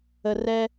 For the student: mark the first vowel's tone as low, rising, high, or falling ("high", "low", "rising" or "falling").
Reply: low